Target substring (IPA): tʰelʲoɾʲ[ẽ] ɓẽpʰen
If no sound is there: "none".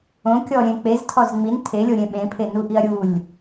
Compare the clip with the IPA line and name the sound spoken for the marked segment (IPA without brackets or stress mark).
ẽ